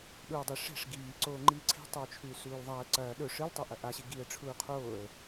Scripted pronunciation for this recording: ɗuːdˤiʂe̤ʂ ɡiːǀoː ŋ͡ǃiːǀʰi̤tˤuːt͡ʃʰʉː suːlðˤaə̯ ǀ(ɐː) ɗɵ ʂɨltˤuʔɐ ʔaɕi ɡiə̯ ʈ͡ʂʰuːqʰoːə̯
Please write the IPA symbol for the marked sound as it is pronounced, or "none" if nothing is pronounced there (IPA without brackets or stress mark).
ɐː